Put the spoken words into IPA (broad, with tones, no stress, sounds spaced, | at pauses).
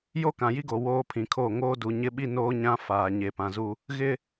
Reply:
j o˦ k ã˨ j i˦ ɡ o˨ w oː˦ pʰ ĩ˨ kʰ oː˦˨ ŋ oː˦ d u˨ ɲ ɪ˦ ɓ i˦ n oː˦ ɲ ã˦ f aː˨ ɲ e˨ p ã˨ z u˦ | ɣ ɪ˦